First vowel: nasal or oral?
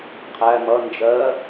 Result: oral